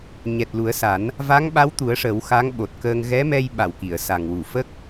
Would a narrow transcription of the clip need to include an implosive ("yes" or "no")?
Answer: yes